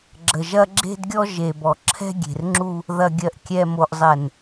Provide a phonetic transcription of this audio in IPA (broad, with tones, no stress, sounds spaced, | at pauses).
ɡ͡ǁ ə˨ ʒ ɐ˦ ɡ͡ǁ e̤˦ d ɡʲ ɔ˦ ʒ e˨ b ɔ˨ ǁʰ ɛ̤˦ ɡʲ e̤˨ r ŋ͡ǁ u˦ | ð ɐ˨ ɡʲ ɜ˨ ʔ kʲ ɛ˨ m o˨ ʔ zˤ ɛ˨ n